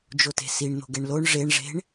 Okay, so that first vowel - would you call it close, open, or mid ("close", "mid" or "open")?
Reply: mid